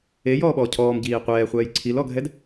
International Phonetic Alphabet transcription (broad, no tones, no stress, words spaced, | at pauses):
ejɔːɓɔː cʰɔːmɟiː qʷɛːχʷɛːj ǀʰilɔɡʱɛd